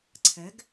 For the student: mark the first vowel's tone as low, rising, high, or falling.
rising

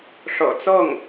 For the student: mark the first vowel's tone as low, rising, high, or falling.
low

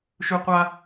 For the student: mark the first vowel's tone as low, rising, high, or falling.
high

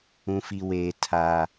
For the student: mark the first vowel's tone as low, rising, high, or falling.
high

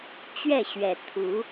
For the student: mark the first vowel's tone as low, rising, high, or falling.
falling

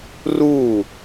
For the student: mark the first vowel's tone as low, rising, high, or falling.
falling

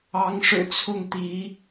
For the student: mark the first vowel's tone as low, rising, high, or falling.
rising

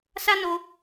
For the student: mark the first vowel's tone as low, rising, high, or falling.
high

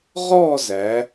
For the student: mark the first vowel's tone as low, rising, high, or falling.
falling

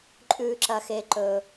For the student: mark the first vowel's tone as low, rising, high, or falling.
high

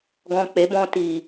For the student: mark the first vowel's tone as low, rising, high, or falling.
low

